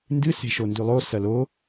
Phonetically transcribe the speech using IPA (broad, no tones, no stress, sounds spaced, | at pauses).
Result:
n d ɨ s e̤ ʃ o n d ʉ lˠ o s ɐ l o